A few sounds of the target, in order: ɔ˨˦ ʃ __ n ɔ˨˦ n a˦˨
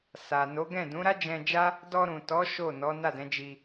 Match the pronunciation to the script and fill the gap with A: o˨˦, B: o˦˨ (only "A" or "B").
B